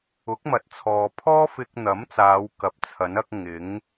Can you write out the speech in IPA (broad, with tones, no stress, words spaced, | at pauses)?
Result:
ʊ˨˥k̚mɐ˨˥t̚t͡sʰɔː˨pʰɔː˥ fɪ˧k̚n̪ɐ˨˥mt͡saː˨˧w kɐ˨˥p̚t͡sʰɐ˨˥n ɐ˥k̚ ŋɪ˨˥ŋ